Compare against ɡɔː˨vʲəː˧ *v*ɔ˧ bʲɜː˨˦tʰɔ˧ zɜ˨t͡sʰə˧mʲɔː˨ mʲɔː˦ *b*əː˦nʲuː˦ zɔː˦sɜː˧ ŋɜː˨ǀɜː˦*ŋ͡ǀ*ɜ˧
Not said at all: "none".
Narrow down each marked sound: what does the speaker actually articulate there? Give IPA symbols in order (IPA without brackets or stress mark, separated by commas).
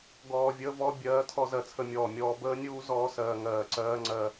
v, b, ŋ͡ǀ